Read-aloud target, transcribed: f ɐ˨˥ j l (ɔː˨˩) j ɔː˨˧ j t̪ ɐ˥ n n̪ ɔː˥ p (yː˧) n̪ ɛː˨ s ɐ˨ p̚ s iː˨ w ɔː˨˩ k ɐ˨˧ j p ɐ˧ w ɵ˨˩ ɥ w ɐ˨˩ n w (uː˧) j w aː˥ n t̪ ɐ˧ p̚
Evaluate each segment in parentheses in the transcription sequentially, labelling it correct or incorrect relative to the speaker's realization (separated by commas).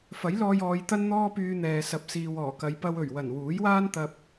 incorrect, correct, incorrect